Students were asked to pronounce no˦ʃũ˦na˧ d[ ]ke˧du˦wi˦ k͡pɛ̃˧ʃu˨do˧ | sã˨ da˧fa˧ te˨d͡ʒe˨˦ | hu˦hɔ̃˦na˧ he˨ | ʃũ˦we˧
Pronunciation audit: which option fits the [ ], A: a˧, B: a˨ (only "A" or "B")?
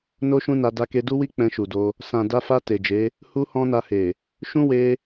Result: A